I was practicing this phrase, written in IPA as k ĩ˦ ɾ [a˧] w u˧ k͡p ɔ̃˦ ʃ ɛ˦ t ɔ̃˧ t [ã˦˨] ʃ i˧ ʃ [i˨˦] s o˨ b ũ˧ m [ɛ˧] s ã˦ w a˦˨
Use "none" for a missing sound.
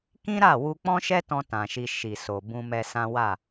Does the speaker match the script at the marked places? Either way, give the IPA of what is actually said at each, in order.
a˦˨, ã˨, i˨, ɛ˧

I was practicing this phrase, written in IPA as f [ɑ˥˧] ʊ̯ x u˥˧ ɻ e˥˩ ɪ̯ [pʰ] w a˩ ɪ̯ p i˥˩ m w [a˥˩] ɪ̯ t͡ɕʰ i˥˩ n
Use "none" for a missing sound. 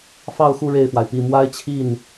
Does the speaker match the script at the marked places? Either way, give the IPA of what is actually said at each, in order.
ɑ˥˧, f, a˥

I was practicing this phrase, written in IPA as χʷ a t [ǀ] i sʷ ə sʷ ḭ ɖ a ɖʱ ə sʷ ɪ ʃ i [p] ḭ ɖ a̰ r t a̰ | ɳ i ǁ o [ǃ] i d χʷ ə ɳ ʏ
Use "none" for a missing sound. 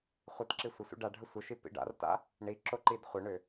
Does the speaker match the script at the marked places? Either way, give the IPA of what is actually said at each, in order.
ǁ, p, ǃ

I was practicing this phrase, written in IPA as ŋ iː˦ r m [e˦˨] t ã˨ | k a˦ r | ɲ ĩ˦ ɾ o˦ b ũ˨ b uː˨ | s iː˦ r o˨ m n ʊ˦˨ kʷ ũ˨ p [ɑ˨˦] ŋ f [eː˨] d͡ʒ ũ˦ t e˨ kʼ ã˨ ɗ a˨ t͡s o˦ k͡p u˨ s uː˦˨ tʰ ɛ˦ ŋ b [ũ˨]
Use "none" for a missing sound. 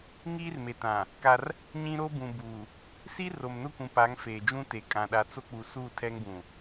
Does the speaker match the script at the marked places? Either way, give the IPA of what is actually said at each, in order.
e˨, a˨˦, eː˨, ũ˨

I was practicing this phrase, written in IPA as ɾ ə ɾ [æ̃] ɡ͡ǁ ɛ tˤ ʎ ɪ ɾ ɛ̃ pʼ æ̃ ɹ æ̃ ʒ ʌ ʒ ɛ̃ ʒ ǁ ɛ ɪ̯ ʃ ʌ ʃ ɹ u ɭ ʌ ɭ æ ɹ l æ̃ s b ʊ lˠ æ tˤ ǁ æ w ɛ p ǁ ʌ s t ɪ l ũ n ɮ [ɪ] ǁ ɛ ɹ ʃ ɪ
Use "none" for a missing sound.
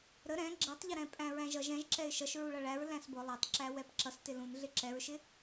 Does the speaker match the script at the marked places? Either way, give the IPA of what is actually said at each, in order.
ɛ̃, ɪ

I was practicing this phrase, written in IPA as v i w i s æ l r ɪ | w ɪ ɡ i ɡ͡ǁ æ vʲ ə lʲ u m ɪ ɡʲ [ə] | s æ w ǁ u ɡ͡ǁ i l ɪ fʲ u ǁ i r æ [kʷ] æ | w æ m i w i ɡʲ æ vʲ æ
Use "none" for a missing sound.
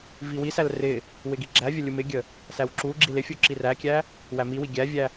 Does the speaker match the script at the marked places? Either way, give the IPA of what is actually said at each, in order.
ə, kʲ

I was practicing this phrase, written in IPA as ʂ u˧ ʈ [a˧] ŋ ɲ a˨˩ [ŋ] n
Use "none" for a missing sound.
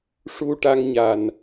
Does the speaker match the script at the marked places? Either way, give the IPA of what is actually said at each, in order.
a˧, none

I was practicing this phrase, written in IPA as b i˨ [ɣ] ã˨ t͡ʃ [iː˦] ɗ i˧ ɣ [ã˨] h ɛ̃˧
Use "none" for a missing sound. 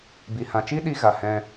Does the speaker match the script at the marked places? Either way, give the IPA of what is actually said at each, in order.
h, i˦, a˨

